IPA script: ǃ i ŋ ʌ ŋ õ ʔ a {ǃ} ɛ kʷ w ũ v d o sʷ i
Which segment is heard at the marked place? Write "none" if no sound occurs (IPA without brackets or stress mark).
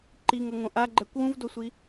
ɡ͡ǃ